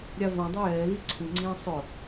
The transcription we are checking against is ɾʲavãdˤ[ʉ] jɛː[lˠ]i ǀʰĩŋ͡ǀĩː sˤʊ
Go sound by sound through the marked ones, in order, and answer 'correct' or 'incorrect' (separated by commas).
incorrect, incorrect